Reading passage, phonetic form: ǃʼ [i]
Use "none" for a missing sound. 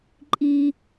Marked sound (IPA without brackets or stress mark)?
i